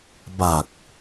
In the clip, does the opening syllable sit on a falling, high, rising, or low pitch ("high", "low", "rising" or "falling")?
low